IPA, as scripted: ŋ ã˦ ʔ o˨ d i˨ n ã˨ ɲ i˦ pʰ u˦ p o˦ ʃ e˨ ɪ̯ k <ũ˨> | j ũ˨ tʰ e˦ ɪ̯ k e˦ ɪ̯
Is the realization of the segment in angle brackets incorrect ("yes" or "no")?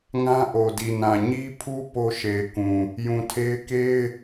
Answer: no